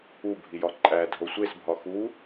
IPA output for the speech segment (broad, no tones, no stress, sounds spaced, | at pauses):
u bʱ i j ɒ ǃʼ æ dʱ o sʷ e s bʱ ɒ x u